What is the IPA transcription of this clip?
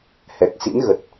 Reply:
hɛ˨˩k̚ sḭ˧˥nɣə˨˩t̚

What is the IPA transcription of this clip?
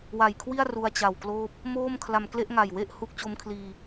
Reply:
wa˨˩jkʰwi˥˩a̯ ru˧a̯t͡ɕa˨˩wkloː˥˩p̚ | moː˥˩m kʰla˧mkle˥˩ʔŋa˨˩jwe˥˩ʔ hu˦˥k̚t͡ɕo˦˥mkʰliː˧

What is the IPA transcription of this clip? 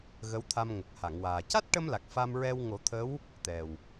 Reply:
ɣə˧˥wt̪ʰa˧mŋə˨˩k̚ha˨˩˨ŋ waː˨˩ ca˦˥t̚ʈə˧mla˨˩k̚ fa˧mɹɛ˧w ŋo˨˩˦t̪ʰə˧˥w | t̪ɛ˨˩w

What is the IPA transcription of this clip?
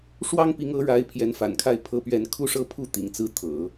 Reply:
ʂwɑ˥ŋpi˧˥ŋɤ˧˥ɻa˧˥ɪ̯ pʰjɛ˧˥nfa̰˨˩nkʰa˥˩ɪ̯ pʰɤ˥pɥɛ˥n kʰu˥˧ʂɤ˥˧pʰu˥˩ t̪ḭ˨˩ŋt͡sɹ̩˥˩ t̪ʰɤ̰˨˩˦

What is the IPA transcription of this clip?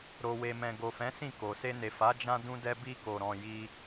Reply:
ɾo˨we˨mɛ̃˨ ɡo˨fɛ̃˨˦ sĩ˦˨ko˨ se˧ne˨ fa˨˦ d͡ʒã˦dũ˦ dɛ˦bi˦ko˧ɾɔ̃˧ ji˧

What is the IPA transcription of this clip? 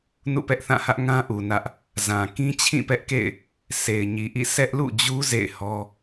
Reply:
nṵ˦˨pɛ˦ʔθã˦˨hä˦ʔ ŋã˦ʔu˨ nä˦ʔ | zã˨ kĩ˦t͡ɕʰĩ˦˨pɛ˦ʔkḛ˦˨ɪ̯ | sʰe˨ɪ̯ɲi˨ʔḭ˦˨ sʰɛ˦ʔlṵ˦˨d͡ʑu˦ zḛ˦˨ɪ̯hɔ˦

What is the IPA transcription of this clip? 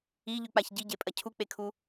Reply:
iʎʉk͡paç ɟiɟepʼɐ cʰuk͡pekʰu

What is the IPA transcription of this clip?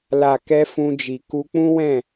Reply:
la˨kɛ˧ fũ˧d͡ʒi˨ ku˧k͡pũ˦wɛ̃˦˨

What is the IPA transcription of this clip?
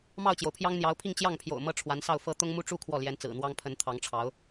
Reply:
mɑ˥˩ʊ̯t͡ɕjo˩ʊ̯pʰjɑ˥ŋn̪jɑ˧˥ʊ̯ pʰi˥˧ŋt͡ɕjɑ˥˩ŋpʰjo̰˨˩ʊ̯ mɤ˥ʈ͡ʂʰwa˧˥nsɑ˥˩ʊ̯fɤ˥ t̪ʊ˥ŋmu˥ʈ͡ʂu˥˧ kʰwɔ˥˩ljɛ˧˥nt͡sɹ̩˨˩n̪wɑ˥ŋ pʰə˧˥nt̪ʰɑ˧˥ŋʈ͡ʂʰɑ˧˥ʊ̯

